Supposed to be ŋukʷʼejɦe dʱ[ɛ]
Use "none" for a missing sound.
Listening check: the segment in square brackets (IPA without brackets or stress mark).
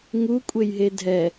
ɛ